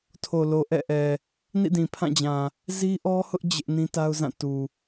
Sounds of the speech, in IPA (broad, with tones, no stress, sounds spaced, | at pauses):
tʰ o˨ l o˨ ʔ ɛ̰˦˨ ʔ ɛ˨ | n ḭ˦˨ d ĩ˨ pʰ ã˦˨ d͡ʑ ã˨ | z i˦ ʔ ɔ˦ h ʊ˦ ʔ d͡ʑ ɪ˦ ʔ n ĩ˦ t a˦ ʊ̯ z ã˦˨ t u˨